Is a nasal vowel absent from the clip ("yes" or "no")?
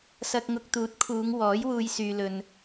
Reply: yes